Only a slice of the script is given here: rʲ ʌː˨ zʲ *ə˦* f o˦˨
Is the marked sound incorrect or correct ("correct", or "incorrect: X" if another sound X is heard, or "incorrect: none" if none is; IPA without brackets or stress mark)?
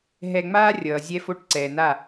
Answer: incorrect: ɛ˦